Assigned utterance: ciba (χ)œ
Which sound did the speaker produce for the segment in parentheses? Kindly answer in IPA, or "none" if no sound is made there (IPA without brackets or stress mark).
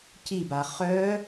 χ